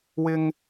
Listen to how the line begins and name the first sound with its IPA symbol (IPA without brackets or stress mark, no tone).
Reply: w